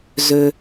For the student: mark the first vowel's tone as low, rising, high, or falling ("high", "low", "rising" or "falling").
high